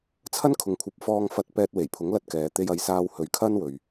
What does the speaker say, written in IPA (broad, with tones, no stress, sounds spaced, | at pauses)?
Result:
t͡sʰ ɐ˥ n kʰ ʊ˨ ŋ kʷʰ ɐ˨˥ p̚ f ɔː˧ ŋ f ɐ˧ t̚ p ɛː˧ t̚ w e˨˩ j pʰ ʊ˨˥ ŋ l ɐ˧ t̚ k ɛː˨ t̪ e˧ j ɐ˨˧ j s aː˧ w h ɵ˨˧ ɥ kʰ ɐ˥ n w ɵ˨ ɥ